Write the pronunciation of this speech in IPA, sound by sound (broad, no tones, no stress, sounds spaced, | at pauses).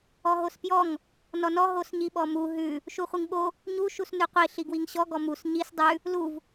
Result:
ɔ ɦ o s p j ɔ ŋ | n ɔ n ɔ ɦ o s ɲ i ɓ ɔ m u ɦ ʉ | ʃ u χʷ i ŋ ɓ o | ɲ u ʃ u s n ʉ qʷ i ɬ i ɡ w i ŋ ɕ ɔ ɡ ɔ m u s ɲ i s dˤ ʉ | l u v